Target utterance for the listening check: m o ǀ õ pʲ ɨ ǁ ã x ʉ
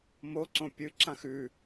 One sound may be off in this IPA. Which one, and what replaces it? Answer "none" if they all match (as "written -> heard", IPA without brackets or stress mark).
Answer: none